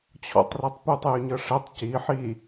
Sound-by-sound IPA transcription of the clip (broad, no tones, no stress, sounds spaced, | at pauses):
t͡ɕʰ ɔ̰ tˤ r ɛ tˤ p ʉ tˤ j ʉ ɲ ɤ ʂ ɛ tˤ c i ħ i